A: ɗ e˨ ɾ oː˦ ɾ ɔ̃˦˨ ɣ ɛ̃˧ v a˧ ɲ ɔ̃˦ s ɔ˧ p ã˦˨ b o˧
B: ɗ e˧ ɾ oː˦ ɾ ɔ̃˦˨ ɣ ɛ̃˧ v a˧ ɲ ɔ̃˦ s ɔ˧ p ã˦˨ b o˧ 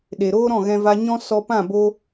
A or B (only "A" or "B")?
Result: A